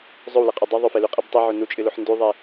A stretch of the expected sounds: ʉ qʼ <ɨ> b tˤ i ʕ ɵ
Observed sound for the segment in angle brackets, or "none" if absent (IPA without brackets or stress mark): i